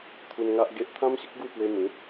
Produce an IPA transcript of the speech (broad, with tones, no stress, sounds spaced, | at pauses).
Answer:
t̪ʰ u˧ n ŋ a˦ ʔ ɡ e˦ ʔ t̪ʰ ã˦ m ɕ ə˦ k̚ ɡ u˥˧ p w e˧ m ĩ˨˦